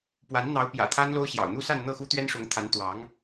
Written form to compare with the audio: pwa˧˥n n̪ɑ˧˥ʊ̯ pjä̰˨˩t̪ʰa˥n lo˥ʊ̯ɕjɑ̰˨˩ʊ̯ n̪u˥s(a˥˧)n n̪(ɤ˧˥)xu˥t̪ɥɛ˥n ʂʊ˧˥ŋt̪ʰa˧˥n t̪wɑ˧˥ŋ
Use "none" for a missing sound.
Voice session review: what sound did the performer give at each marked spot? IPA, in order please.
a˥˧, ɤ˥˩

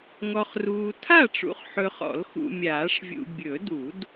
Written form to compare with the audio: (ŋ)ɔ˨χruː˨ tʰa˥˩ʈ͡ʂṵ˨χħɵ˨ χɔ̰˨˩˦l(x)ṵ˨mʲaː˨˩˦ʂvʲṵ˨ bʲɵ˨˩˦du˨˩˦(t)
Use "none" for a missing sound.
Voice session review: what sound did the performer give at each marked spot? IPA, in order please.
ŋ, x, d

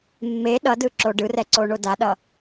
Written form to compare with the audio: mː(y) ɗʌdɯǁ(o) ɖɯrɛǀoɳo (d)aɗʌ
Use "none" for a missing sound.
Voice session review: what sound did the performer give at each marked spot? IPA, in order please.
e, o, d

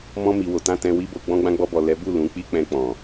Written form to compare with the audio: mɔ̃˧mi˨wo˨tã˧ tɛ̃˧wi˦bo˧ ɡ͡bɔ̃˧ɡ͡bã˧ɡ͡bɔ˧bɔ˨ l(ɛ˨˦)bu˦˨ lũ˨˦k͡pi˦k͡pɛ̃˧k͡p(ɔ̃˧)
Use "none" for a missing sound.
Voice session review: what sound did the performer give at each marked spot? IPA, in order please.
ɛ˨˦, ɔ̃˨

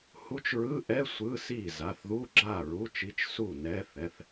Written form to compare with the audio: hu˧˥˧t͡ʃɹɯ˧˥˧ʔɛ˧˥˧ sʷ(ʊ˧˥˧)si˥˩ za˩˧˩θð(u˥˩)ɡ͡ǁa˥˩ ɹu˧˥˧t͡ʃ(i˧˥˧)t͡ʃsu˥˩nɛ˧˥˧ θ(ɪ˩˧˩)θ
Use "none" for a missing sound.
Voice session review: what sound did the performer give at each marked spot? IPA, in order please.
ɯ˧˥˧, u˧˥˧, i˧˥˧, ɛ˩˧˩

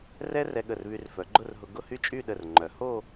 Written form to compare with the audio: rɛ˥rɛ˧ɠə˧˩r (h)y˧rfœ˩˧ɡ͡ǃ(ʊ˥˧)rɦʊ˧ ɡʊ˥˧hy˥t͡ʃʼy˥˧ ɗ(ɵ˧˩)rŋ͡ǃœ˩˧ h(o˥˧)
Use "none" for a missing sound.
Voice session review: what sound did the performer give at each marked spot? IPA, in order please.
β, ʊ˥˧, ə˧˩, o˥˧

